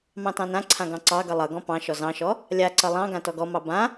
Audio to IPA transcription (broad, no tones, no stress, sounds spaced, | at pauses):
m ɑ̃ t ɑ̃ n ã ǀʰ ã ɡ ɑ̃ ǀ ɑ ɡ ʌ lˠ ʌ ɡ ɔ̃ p ɑ̃ ʃ ɔ z ɑ̃ ʃ ɔ | lʲ a ǀ ʌ lˠ ɑ̃ ɡ ã t ɔ ɡ ɔ m ɑ b ã